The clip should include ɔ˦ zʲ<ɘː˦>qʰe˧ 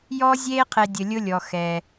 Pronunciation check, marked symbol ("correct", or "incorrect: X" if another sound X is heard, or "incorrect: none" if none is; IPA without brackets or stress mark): incorrect: eː˦